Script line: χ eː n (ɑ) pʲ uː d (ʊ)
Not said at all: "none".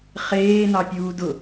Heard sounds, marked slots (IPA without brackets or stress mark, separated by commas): ɑ, ʊ